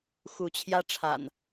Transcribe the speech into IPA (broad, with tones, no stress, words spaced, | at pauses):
xu˨˦t͡ɕʰjä˦ ʈ͡ʂʰa̰˨˩n